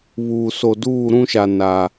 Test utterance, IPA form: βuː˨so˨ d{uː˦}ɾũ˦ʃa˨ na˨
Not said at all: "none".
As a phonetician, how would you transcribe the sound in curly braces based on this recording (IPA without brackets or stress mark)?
uː˦˨